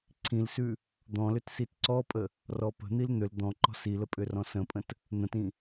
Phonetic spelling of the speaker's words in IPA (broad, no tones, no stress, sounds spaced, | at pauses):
ǀʰ ĩ l s ʉ | d̪ ɔ̃ l ʏ t s i t ǀ ɔ pʼ ə | r ɔ p ə̤ n̪ i l n̪ ʏ l d̪ ɔ̃ ǃ ɔ̤ s i l ə pʼ ʏ r ɔ̃ s ə̃ pʼ ə̃ t | n̪ ə̃ t ĩ